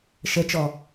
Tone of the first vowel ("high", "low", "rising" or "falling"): rising